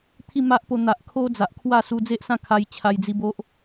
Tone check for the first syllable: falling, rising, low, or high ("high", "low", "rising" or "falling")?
falling